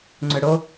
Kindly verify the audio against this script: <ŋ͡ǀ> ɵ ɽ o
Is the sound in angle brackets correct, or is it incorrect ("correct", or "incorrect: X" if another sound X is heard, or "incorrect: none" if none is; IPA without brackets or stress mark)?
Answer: correct